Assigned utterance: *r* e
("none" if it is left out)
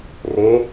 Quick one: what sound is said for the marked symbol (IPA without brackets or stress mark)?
r